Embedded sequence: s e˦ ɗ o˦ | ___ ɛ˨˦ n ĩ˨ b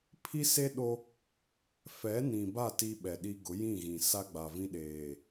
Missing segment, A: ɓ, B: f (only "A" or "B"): B